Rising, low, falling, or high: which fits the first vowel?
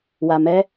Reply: low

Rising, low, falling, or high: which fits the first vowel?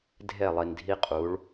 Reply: falling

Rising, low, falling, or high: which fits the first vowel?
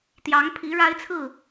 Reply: rising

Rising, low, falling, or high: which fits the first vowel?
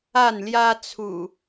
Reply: falling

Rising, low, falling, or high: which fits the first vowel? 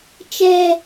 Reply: high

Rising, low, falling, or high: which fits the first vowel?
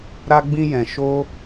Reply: high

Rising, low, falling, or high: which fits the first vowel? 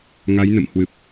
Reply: rising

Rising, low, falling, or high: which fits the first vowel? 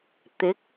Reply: rising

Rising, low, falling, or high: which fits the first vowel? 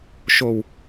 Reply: low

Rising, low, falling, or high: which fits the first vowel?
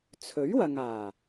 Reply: rising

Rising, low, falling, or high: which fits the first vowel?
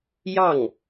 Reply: falling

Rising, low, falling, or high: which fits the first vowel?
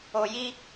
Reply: low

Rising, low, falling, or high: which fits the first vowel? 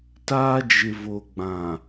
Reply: high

